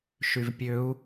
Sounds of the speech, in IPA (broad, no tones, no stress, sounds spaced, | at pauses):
ʃ y v pʲ ø u̯